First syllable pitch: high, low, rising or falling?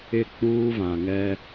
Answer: falling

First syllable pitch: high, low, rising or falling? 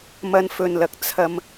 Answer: high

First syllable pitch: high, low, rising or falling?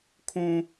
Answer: high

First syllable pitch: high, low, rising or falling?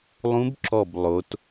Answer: rising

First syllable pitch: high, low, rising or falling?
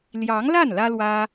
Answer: rising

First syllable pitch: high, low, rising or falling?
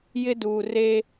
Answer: high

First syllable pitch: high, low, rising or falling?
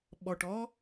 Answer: low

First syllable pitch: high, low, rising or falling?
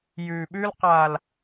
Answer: low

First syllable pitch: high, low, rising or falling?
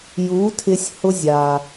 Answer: rising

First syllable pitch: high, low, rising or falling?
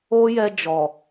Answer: high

